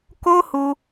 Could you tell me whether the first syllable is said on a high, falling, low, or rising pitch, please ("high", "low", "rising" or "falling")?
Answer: high